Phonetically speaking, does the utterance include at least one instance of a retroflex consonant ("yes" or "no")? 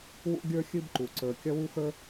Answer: no